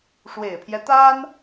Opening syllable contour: low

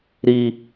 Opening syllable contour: high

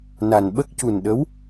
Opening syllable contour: low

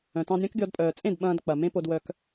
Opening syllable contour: low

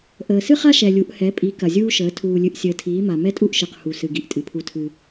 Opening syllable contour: low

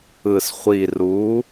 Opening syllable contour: low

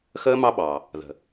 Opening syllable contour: high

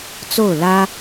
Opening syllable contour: falling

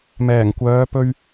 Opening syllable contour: low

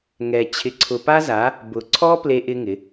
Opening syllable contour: low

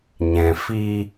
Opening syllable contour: low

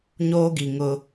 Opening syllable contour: high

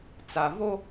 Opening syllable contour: low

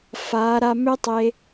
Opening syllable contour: rising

